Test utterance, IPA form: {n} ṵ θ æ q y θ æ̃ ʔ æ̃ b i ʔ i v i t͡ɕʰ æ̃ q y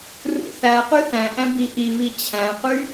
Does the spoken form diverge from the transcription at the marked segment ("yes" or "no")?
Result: yes